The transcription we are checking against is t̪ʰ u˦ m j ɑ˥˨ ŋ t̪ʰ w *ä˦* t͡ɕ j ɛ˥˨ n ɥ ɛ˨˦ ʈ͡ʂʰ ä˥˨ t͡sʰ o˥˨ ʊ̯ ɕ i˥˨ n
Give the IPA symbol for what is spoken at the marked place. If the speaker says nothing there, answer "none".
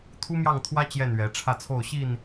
ä˦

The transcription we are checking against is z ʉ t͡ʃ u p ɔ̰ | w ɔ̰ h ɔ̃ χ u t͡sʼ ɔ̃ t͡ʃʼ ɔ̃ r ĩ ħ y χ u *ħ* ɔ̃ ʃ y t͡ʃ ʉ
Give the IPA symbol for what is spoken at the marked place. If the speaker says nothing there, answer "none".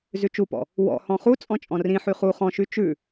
χ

